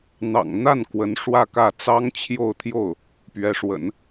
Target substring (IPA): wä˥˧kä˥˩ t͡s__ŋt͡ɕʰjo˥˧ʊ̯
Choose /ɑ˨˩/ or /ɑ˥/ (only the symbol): ɑ˥